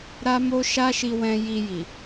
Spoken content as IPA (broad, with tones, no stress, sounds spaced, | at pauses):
ɾ a˦ m o˦ ʃ a˦ ʃ i˧ w ɛ̃˧ j i˧ j i˨